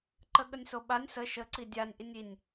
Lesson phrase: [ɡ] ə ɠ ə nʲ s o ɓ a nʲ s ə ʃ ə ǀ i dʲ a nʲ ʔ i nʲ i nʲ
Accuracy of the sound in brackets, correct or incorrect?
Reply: incorrect